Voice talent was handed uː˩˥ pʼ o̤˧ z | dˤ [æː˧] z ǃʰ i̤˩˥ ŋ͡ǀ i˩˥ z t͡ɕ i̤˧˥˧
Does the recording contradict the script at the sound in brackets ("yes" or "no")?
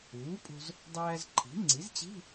no